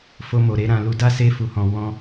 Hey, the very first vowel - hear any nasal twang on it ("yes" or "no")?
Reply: no